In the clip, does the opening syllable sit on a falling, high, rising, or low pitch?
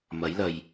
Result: rising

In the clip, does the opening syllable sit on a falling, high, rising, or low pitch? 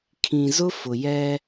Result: low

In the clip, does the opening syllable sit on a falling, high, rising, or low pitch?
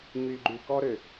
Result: low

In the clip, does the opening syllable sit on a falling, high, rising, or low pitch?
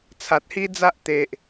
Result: low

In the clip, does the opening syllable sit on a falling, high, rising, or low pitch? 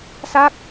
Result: falling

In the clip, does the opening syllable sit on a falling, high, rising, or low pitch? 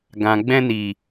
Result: low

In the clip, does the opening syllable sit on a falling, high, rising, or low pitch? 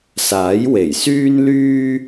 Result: rising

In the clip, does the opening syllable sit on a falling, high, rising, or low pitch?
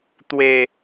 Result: low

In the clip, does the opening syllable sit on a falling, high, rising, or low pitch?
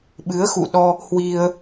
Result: rising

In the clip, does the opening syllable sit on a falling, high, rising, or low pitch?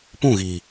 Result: falling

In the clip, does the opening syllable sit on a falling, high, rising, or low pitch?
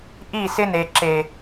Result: falling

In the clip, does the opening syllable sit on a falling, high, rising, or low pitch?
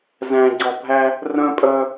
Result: low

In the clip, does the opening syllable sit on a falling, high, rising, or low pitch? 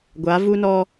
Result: rising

